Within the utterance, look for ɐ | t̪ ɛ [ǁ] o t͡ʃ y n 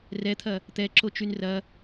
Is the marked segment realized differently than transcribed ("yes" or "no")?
no